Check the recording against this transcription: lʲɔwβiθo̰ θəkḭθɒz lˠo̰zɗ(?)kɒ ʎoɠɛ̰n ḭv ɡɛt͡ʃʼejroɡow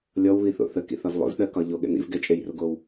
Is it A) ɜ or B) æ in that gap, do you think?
A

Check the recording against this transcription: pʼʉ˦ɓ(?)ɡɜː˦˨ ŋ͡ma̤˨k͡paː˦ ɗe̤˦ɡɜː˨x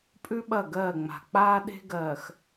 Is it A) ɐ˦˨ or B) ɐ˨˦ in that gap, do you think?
A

